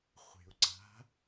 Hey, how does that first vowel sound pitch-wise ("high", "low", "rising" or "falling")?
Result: low